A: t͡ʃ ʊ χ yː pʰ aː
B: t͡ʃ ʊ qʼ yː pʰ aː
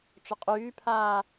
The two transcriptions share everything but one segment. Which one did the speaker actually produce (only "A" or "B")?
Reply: B